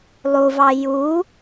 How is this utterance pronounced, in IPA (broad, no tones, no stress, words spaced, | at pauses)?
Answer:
lˠuvɑ ju